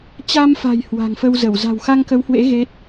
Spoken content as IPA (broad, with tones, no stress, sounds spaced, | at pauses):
t͡ɕ a˧ m f a̤˨˩ j h w a̤˨˩ ŋ f ə˧ w z ə˧˩ w z a̤˨˩ w x a˧ ŋ k ə˨˦ w h w ḛ˧˥ ɣ e˦˥ t̚